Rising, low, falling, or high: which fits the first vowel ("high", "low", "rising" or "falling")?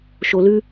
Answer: low